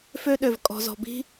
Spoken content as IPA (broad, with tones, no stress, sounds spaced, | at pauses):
f ø˦ ɗ ø˨ v kʼ ɔ̤˨ z ɔ̤˨ b i̤˦